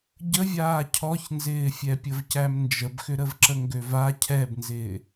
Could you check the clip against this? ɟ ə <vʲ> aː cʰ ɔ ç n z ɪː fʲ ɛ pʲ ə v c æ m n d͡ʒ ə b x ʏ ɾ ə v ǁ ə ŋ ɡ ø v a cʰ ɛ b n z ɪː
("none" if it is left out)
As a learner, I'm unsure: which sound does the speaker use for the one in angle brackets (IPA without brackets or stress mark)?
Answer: vʲ